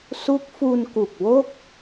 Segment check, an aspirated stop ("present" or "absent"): absent